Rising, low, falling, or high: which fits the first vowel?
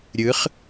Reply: rising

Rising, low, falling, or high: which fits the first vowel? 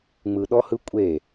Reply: low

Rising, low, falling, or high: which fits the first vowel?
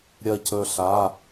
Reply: falling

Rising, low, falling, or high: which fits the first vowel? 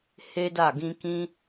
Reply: high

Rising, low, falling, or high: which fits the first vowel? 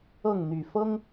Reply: falling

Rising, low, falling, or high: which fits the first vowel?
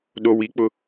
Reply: low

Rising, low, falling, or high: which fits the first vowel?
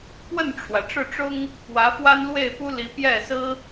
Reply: falling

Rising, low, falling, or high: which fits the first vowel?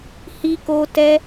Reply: high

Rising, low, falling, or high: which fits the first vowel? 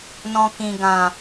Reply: low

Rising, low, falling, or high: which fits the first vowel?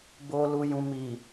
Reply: low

